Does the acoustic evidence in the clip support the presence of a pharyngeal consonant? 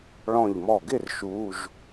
no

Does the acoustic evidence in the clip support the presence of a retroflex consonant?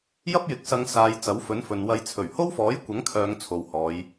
no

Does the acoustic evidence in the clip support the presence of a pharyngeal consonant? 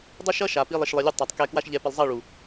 no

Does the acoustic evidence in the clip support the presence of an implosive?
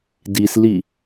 no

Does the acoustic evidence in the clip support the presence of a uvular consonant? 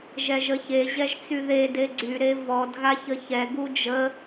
no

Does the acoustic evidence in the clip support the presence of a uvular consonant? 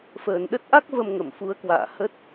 no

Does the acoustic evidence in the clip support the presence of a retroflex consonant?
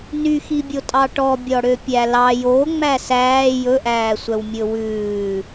yes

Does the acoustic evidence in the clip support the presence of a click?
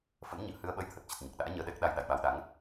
no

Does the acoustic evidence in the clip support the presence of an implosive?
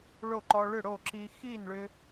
no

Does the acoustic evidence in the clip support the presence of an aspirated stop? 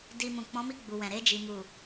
no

